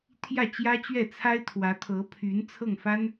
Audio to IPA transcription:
t̪ʰ j ä˥˩ t͡ɕ j ä˥ t͡ɕ ɥ ɛ˥˩ t͡sʰ a˥ ɪ̯ t̪ʰ w ä˧˥ t̪ʰ ɤ˧˥ pʰ y˧˥ n t͡sʰ ɤ˥˩ ŋ f a˥ n

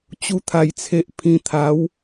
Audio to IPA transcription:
t͡ɕ u˧ t̪ʰ a˨˩ j t͡sʰ e˨ ʔ pʰ ĩ˨˩ t̪ʰ a˨˦ w

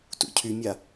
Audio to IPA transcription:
t ṵ cʰ y mʲ a

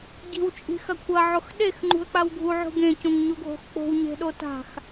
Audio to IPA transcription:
ɟ i̤ w t͡ʃʼ i̤ x ɐ kʷʰ ɐ ʕ o x ɗ e x ŋ͡ǃ ṳ ə̯ k͡p a w ɡʱ u ʕ ṳ ɡ ẽ c õ ŋ ɲ u ɡʱ o̤ x k͡p o̤ w ɲ e̤ ɗ o t a̤ x

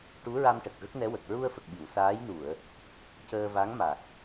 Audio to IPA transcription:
ʈ u˧˥ ɹ a˧ m ʈ ə˨˩ k̚ ɣ ə˦˥ k̚ n ɛ˧˥ w ə˨˩ k̚ ɹ u˧ ə̯ f ə˨˩ k̚ ɓ i˨˩˨ w s aː˧˥ j n u˨˩˨ ə̯ | c əː˧ v a˧˥ ŋ m a˨˩ k̚

